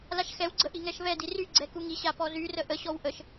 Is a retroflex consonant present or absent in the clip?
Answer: absent